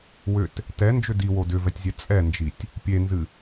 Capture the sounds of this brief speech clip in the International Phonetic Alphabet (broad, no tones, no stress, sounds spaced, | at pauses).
w ʏ t | t ɛ n d͡ʒ ʏ d i w o d ʏ v ɛ tʲ zʲ ɛ t͡sʼ ɛ n d͡ʒ i tʲ | pʲ e n z ɨ